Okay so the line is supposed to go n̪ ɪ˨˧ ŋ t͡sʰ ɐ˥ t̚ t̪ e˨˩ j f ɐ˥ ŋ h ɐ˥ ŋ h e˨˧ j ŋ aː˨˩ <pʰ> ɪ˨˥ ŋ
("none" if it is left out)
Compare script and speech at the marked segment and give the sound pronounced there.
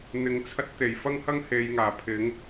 pʰ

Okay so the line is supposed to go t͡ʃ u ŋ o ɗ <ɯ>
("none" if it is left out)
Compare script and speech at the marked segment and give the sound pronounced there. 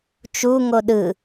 ɯ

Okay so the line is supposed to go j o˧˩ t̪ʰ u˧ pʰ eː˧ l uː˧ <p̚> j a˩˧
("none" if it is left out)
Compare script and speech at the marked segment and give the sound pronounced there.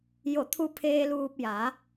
p̚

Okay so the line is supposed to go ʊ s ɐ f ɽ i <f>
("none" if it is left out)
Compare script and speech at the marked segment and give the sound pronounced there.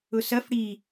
none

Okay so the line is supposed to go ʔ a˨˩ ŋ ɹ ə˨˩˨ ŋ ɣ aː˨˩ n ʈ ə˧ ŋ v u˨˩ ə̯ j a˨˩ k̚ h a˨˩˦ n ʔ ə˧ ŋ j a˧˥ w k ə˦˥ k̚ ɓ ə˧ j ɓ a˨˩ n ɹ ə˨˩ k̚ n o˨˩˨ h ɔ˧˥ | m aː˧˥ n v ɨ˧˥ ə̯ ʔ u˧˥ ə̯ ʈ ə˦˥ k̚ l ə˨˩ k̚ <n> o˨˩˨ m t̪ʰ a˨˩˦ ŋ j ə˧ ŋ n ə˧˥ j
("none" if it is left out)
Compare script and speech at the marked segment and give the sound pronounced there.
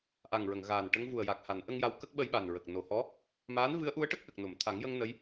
n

